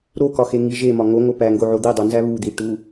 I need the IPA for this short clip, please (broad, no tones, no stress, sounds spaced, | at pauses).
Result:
ɾ o k ɒ x e ŋ i ʒ e m ɒ ŋ o ŋ o p æ ŋ ɡ o ʕ o d̪ i dˤ o n z æ β u d̪ i ʈ u